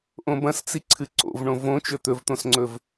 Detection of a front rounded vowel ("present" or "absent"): absent